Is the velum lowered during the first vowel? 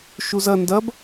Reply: no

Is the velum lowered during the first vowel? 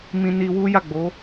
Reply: yes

